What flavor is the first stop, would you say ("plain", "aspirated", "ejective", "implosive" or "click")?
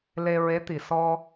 plain